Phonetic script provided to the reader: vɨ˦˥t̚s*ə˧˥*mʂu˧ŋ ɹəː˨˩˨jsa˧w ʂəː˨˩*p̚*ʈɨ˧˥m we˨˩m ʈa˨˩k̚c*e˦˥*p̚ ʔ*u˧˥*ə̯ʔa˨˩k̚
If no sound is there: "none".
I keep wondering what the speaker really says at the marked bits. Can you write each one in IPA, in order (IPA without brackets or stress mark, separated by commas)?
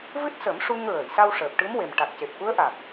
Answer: ə˨˩˦, p̚, e˨˩, u˧˥